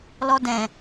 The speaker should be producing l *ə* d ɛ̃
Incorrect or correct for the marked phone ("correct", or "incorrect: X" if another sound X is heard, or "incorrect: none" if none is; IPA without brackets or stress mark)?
incorrect: ɔ